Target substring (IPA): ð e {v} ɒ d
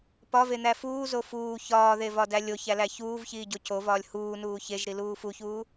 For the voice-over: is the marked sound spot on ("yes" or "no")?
yes